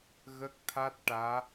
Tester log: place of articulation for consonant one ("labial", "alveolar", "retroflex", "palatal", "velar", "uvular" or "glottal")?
velar